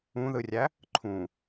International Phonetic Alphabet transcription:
ũ ð ɯ rʲ æ | ǃʰ ũ

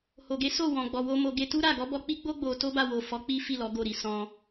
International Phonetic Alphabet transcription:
h o˨ ɡ e˨˦ s o˦˨ w ɔ̃˨ ɡ͡b ɔ˨ w o˧ m o˧ ɡ e˧ t u˦ ɾ a˦˨ ɡ ɔ˨˦ b ɔ˧ k͡p i˦ ɡ͡b o˦ ɡ͡b o˧ t o˦ b a˦˨ w o˨ f ɔ˨˦ k͡p i˦ f i˦˨ l ɔ˨˦ ɡ o˦˨ ɾ i˨˦ s ɔ̃˧

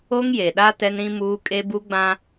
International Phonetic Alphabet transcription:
o˦ ŋ j e˨ ɗ a˦ t ɛ˦ n ɾ ĩ˦ m uː˦ kʼ e˦ b u˦ ɡ͡b ã˦

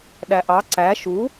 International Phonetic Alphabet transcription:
ɗ æ ʔ ɑ ǀ æ ʃ u

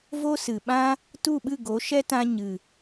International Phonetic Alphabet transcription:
v o˦ s ɨ˨ ɓ ã˦ | t u˦˨ ɓ ɨ˦˨ ɡ o˨˦ ʃ ɛ˦ t ã˧ ɲ ɨ˨

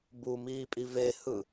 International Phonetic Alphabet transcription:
b u m iː pʼ i v e h ɯ

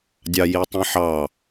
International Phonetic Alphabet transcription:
dʲ ɑ j i tˤ ĩ ħ ɑ

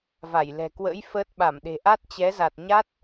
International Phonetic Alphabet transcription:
v a˧˩ j l ɛ̤˨˩ k w ə̰ː˧˥ j f əː˦˥ t̚ ɓ a˧˩ m ɗ e̤˨˩ ʔ a˦˥ t̚ t͡ɕ ɛ˨˦ z a˨˩ t̚ ɲ a˦˥ t̚

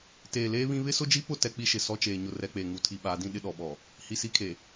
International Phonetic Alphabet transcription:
t eː˨ l eː˦ β ĩ˦ β ɪ˦ s ʊ˦ d͡ʒ i˦ p ʊ˦˨ t ɛ˦ k͡p i˦ ʃ ɪ˨ s ɔ˦ t͡ʃ eː˨ ɲ ʊ˦ r ɛ˦ k͡p e˨ ŋ u˨ tʰ i˨ ɓ aː˨˦ d ĩ˦ ɗ ɪ˦ ɗ ɔ˨ ɓ ɔ˨ | h i˨ s i˦ kʰ e˨

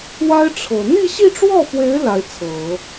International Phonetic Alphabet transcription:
w a˥ ɪ̯ ʈ͡ʂʰ ɤ˨˩ n̪ i˥˧ ɕ i˥˧ ʈ͡ʂ w ɔ˥˩ f w e˧˥ ɪ̯ l a˧˥ ɪ̯ t͡sʰ ɤ˨˩˦

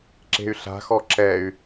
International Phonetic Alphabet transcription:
ǁ e̤ y̯ ɬ a̤ x ɔ ǁ ɛ y̯

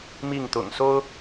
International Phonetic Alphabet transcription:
m i˥˨ ŋ t̪ ʊ̰˨˩ ŋ s o˦ ʊ̯

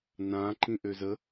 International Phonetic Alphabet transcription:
n ã ǃ ĩ ʔ ø z ə

